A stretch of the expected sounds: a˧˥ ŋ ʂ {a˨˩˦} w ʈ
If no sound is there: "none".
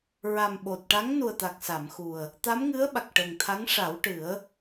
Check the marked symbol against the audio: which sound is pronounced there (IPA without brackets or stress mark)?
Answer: a˨˩˦